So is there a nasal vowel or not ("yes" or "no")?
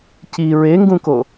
yes